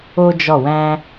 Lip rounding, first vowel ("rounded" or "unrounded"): rounded